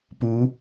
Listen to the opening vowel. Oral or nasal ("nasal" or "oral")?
oral